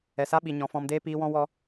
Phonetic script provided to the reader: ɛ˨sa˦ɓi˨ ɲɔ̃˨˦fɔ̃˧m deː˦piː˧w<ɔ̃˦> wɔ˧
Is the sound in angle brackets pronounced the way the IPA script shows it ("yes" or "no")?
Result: yes